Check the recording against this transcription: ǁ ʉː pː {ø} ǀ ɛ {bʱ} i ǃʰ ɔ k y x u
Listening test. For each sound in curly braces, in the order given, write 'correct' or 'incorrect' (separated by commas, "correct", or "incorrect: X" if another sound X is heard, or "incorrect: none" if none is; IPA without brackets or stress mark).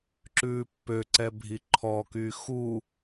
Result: correct, correct